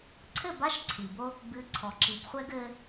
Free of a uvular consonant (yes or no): no